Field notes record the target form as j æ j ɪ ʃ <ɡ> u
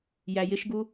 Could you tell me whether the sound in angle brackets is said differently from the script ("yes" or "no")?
no